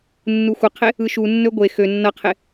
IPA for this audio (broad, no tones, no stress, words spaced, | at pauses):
nːuxʷʌqʰe | ɯʃunːɵ ɡʷe xø nːʌqʰe